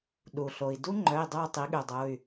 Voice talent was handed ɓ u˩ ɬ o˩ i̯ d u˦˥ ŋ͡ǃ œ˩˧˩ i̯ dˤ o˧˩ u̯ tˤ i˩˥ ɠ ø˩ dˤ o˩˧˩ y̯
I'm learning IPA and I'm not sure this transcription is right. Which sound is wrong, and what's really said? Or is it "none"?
ɓ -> ɗ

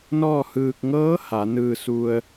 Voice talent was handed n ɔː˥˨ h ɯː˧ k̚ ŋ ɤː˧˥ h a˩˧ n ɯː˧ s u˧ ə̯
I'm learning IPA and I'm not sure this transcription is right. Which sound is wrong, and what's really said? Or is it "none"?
none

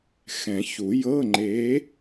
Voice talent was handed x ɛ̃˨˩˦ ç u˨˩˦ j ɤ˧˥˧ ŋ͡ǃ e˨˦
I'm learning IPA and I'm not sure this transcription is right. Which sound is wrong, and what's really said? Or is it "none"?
none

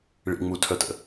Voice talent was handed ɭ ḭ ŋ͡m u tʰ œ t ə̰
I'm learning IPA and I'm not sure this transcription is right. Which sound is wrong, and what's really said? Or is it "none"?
none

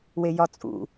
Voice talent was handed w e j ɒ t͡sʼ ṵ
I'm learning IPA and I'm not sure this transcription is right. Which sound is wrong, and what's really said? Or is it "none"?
none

